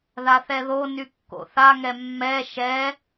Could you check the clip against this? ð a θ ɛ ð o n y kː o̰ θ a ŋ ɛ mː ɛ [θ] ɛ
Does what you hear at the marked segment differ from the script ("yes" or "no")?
yes